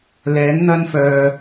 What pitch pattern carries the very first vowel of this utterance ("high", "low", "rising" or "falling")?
rising